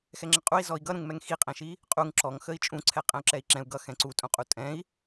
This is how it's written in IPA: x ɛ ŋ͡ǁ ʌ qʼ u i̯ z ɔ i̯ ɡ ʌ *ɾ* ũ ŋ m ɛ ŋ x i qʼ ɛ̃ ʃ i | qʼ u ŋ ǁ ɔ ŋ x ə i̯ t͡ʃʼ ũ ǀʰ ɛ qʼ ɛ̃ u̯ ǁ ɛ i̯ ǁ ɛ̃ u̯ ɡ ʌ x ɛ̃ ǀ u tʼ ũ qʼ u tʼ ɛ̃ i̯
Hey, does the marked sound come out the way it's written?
yes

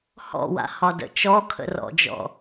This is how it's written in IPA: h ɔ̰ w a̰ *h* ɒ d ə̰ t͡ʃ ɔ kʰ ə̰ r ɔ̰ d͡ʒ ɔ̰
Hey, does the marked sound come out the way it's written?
yes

